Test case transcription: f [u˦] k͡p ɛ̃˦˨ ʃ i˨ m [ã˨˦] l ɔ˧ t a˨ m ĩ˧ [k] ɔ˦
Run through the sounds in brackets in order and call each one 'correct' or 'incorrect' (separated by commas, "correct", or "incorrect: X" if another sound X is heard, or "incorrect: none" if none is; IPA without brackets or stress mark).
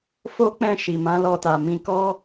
incorrect: o˦, correct, correct